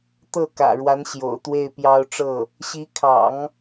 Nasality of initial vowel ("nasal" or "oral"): oral